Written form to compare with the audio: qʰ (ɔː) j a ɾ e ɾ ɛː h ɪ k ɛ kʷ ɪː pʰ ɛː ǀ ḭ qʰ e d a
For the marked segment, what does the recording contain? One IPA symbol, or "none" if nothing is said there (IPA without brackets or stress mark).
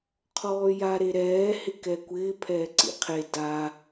ɔː